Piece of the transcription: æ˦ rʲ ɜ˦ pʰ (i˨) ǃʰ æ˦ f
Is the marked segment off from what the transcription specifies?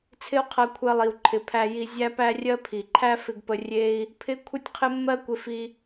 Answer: no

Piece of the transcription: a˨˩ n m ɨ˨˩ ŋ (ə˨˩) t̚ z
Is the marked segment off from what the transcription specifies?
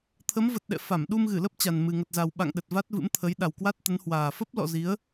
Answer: no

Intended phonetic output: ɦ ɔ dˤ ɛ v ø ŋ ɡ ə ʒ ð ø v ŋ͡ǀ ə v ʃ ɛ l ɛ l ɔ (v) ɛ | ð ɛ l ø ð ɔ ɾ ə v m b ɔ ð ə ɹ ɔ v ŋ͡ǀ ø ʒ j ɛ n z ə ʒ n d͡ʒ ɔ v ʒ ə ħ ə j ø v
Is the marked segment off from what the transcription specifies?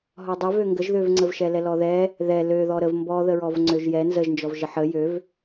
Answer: yes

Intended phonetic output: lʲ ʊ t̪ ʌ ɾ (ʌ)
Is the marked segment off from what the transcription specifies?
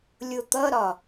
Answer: yes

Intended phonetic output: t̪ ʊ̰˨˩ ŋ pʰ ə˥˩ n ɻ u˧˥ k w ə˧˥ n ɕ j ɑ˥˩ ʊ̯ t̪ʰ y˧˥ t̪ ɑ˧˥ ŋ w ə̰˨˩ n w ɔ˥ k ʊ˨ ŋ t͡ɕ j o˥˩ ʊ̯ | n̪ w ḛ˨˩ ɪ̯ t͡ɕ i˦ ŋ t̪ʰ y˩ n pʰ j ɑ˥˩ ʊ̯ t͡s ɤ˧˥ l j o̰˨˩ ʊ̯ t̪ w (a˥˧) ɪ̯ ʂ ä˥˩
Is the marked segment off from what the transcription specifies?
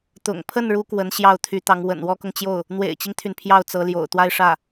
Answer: no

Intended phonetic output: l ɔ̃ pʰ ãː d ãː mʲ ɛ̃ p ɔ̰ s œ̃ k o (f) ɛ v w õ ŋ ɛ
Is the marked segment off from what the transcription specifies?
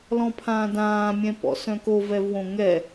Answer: yes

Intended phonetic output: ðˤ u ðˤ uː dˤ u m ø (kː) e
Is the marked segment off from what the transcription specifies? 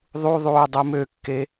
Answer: no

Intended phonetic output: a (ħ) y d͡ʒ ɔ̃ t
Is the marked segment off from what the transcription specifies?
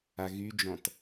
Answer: yes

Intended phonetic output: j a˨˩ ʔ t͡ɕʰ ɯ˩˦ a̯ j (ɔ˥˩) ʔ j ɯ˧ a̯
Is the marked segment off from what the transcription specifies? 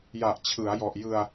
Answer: yes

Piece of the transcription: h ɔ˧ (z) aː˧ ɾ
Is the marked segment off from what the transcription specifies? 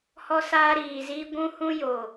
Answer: yes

